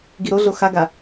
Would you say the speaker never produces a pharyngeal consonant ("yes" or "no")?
yes